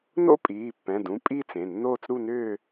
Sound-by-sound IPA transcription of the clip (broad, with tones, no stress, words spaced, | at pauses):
no̰˥˧pʼiː˩˧˩pːɛ̃˩˧˩dũ˩˧˩ pʼiː˥˧t͡s ẽ˩˧˩ nːoː˥˧t͡sɾu˥˧nʏː˥˧